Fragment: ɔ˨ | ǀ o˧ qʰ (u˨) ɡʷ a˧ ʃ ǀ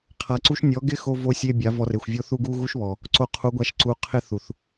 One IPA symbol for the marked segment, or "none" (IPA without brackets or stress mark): u˨˦